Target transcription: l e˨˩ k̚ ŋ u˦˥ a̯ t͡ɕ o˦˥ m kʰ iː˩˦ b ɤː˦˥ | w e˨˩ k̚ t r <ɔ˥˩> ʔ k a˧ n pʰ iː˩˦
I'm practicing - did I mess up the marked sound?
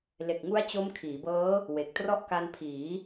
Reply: no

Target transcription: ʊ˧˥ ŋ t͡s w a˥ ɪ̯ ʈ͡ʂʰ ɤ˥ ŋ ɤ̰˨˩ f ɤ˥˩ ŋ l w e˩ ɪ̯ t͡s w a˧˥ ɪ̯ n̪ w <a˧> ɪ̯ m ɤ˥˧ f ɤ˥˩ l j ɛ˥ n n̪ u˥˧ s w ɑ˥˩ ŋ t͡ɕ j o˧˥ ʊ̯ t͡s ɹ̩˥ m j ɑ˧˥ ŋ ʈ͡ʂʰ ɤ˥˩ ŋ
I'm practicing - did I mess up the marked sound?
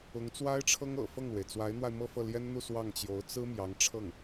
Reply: no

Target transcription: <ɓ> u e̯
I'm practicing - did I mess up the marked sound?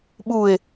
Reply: no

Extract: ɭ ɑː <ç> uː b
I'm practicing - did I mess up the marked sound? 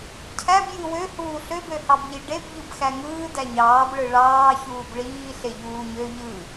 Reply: no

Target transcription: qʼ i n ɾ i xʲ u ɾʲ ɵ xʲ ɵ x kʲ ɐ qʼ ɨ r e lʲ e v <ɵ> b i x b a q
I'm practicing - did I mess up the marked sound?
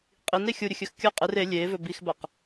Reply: no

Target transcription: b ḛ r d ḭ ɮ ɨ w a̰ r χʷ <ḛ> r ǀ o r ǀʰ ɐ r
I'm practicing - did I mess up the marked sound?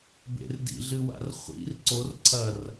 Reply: yes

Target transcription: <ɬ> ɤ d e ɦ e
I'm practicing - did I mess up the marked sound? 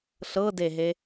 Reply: no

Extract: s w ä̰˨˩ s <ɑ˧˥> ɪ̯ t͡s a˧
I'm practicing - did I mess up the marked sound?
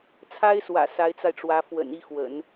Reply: yes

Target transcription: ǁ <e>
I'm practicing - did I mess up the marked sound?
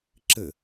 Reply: yes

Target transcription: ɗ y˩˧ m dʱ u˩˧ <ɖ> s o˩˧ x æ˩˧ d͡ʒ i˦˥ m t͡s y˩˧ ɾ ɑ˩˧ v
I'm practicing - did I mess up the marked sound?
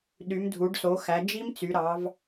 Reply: no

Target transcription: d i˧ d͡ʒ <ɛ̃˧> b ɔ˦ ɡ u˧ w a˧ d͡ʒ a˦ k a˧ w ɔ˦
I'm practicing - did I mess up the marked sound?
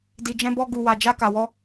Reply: yes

